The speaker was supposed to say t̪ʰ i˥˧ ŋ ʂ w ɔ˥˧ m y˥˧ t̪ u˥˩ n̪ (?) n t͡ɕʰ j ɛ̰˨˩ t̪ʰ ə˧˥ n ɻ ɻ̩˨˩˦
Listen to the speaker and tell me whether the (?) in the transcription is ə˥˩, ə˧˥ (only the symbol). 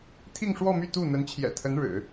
ə˧˥